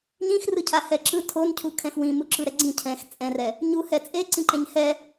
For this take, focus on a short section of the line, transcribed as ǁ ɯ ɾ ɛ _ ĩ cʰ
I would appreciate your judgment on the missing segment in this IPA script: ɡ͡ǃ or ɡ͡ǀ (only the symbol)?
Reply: ɡ͡ǀ